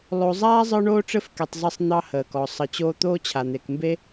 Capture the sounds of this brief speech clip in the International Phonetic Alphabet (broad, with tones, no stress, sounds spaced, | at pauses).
lˠ o˨ zˤ aː˦ zˤ ə˞˥ ɳ oː˥ ʈ͡ʂ ɘ˥ f k e˨ tˤ zˤ ɘ˦ sˤ n̪ ɑ˦ h əː˩ k ɔ˩ sˤ ə˨ t͡ɕ oː˦ t̪ oː˦ t͡ɕʰ a˩ n̪ e˩ k m b e˦